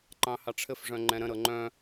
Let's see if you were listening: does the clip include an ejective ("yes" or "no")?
no